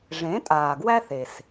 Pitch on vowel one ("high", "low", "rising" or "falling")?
rising